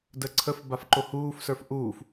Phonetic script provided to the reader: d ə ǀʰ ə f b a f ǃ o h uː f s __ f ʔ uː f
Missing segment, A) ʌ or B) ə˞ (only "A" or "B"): B